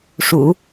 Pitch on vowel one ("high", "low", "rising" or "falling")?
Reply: low